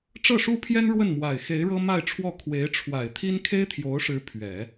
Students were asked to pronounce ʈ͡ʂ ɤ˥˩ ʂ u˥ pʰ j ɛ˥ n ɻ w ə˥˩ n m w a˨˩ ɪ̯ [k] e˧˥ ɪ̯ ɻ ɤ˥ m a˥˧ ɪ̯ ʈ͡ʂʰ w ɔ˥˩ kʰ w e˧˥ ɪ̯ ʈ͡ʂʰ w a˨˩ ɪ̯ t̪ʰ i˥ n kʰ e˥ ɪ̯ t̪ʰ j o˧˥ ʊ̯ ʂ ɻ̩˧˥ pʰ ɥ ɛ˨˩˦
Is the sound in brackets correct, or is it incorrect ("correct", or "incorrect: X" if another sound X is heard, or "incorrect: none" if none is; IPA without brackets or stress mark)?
incorrect: x